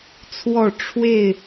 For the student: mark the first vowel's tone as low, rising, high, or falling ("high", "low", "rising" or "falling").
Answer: falling